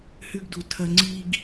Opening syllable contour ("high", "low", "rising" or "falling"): high